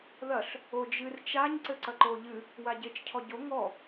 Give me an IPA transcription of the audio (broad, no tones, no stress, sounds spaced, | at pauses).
ð ɐ ɬ | o d͡ʒ ɨ r t͡ʃ a ɲ ǀ ɘ ǀ ɐ ǃ o ʎ ɨ | w a ɟ e t͡ʃ cʰ ɔ ɟ o ŋ ɔ